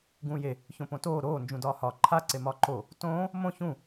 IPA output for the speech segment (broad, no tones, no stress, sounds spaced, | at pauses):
ɡ ũː j e | ç õ p õ t oː ɾ oː n d͡ʒ ũ d ɒː h ɒ ǃʰ a ǀ e m ɒː ǃ o | t õː | m õ ç ũ